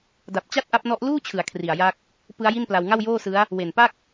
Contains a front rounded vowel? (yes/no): no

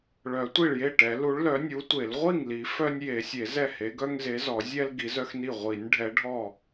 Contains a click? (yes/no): no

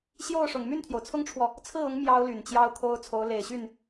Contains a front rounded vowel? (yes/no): yes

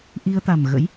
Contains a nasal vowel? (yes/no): no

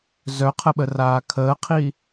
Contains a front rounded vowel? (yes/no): yes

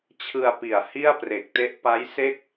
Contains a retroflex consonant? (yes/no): no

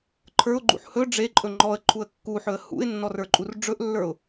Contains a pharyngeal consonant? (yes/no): yes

